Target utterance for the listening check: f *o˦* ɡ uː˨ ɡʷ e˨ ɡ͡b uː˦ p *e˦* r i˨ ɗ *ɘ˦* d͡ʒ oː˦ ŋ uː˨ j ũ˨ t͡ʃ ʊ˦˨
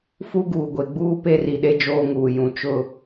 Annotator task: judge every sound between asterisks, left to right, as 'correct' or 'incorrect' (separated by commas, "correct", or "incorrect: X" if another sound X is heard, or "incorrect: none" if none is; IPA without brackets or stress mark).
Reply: incorrect: u˦, correct, incorrect: e˦